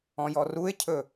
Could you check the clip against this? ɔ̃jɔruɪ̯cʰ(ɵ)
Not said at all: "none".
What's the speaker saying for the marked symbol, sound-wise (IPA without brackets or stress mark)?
ɵ